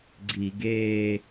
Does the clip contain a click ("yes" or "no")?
yes